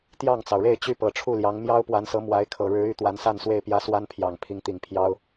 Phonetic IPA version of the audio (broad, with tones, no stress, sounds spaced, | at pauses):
t̪ j ɑ˥˩ ŋ t͡s ɑ˩ ʊ̯ ɻ e˥˩ ɪ̯ t͡ɕ y˥ p ɤ˨˩ ʈ͡ʂʰ u˥˩ l j ɑ˧˥ ŋ m j ɑ˥ ʊ̯ p w a˧˥ n s ɤ˧˥ m w a˧˥ ɪ̯ kʰ ɤ˨˩ ɻ ɻ̩˧˥ y˧˥ t̪ w a˧˥ n s a˥˧ n s w e˥˩ ɪ̯ p j ä˥ s w a˥ n pʰ j ɑ˨˩ ŋ pʰ i˧˥ ŋ t̪ i˨˩ ŋ pʰ j ɑ˥ ʊ̯